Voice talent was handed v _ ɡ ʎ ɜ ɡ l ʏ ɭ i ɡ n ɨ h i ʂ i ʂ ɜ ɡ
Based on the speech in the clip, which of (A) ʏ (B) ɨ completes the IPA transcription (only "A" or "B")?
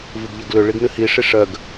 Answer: B